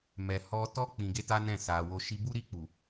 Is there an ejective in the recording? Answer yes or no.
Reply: no